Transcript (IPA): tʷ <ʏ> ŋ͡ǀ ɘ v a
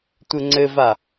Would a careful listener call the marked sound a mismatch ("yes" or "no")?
yes